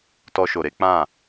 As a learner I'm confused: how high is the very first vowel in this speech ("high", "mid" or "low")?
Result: mid